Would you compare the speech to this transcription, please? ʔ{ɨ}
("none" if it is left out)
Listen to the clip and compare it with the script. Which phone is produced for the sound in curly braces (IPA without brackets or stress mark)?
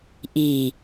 i